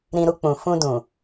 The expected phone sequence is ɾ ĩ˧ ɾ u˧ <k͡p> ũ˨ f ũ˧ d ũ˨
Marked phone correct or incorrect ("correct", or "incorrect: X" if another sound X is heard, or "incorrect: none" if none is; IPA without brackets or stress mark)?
correct